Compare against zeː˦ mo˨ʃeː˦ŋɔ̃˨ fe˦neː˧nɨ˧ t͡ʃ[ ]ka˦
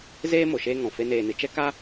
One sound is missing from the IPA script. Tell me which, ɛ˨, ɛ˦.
ɛ˦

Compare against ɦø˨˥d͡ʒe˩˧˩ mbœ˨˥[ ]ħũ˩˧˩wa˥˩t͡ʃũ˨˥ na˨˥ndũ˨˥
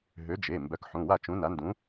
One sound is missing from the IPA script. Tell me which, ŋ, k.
k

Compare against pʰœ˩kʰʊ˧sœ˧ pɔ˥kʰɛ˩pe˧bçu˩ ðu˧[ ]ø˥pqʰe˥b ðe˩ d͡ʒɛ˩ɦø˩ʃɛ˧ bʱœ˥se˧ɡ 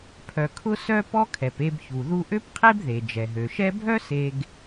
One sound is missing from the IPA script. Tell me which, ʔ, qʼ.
ʔ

